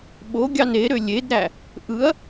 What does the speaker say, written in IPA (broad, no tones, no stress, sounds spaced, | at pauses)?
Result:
ɓ o ɡʲ ɑ n e ɾ ø lʲ e d ɾ æ | ʔ ɯ ɐ̯